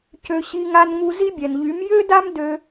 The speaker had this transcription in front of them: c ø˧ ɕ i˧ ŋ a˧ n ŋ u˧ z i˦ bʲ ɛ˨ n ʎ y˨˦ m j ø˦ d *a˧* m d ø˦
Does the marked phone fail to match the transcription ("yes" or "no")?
yes